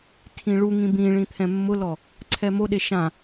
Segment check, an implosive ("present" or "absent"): present